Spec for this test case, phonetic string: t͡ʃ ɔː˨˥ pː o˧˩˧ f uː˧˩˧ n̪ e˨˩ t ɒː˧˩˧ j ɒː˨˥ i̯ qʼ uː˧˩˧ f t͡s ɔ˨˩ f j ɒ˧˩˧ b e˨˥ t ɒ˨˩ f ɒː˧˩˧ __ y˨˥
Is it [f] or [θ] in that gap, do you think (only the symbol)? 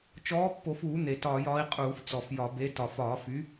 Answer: f